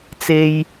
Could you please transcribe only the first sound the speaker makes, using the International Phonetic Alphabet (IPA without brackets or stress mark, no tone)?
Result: t͡s